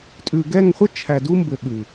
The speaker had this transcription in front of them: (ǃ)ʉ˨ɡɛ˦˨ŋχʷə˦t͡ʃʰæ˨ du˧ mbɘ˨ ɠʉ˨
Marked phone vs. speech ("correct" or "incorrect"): incorrect